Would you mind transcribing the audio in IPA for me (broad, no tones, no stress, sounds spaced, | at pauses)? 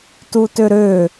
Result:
t u t ø ɾ ø